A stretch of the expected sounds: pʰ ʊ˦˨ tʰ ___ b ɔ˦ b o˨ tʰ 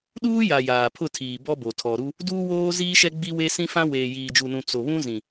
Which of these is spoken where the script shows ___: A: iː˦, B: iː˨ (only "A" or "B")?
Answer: B